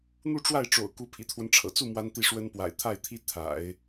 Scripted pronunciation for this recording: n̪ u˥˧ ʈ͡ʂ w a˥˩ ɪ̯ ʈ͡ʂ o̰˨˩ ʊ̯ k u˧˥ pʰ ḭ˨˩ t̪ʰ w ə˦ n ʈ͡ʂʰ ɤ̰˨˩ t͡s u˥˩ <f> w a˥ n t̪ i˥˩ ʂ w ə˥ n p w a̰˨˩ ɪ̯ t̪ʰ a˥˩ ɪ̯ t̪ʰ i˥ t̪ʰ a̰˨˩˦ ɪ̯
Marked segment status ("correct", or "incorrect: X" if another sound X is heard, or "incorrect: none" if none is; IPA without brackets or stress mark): incorrect: m